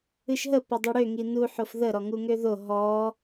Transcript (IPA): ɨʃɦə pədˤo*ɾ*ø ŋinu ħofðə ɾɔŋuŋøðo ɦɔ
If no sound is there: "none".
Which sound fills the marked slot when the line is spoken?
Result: ɽ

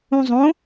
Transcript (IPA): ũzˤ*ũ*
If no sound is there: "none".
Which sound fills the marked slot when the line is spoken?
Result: õ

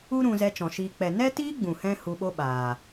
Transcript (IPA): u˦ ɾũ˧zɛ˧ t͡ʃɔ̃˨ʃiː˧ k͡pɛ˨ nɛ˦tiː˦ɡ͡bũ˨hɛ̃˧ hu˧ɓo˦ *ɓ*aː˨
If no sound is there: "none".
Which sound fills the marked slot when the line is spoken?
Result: ɓ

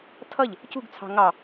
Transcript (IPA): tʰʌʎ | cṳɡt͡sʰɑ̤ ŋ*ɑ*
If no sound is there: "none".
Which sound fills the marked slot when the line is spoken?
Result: ɑ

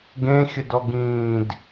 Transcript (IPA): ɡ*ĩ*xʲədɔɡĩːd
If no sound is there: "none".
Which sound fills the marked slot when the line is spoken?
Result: ẽ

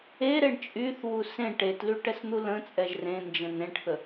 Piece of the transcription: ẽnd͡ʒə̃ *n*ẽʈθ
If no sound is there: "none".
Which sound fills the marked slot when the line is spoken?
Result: n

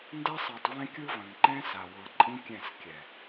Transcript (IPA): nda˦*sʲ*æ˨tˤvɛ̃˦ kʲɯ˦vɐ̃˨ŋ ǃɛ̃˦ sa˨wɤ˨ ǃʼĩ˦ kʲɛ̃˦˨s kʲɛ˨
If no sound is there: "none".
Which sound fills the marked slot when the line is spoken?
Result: sˤ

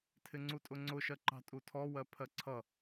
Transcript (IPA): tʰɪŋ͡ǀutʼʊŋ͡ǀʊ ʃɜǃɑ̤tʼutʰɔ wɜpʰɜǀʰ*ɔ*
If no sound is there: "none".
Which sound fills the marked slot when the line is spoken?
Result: ʌ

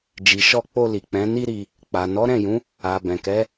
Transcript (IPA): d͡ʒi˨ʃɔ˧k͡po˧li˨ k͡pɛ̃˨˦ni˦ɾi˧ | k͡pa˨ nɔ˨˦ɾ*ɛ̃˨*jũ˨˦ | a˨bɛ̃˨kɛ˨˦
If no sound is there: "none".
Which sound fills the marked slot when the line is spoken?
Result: ɛ̃˦˨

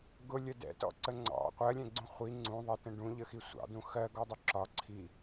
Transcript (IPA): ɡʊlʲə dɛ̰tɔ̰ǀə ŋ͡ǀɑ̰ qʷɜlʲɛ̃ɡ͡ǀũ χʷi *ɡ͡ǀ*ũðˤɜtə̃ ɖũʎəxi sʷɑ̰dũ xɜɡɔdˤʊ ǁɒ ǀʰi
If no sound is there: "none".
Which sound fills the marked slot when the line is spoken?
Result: ŋ͡ǀ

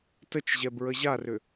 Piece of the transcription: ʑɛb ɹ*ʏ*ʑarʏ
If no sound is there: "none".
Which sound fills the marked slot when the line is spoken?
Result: ə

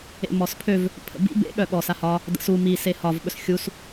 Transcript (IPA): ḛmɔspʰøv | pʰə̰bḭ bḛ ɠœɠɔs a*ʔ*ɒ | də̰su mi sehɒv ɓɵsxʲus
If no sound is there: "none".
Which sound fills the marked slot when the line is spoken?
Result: h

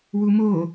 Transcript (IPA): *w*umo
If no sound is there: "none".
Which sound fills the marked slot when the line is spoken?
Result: w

